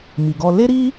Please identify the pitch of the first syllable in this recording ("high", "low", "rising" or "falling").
low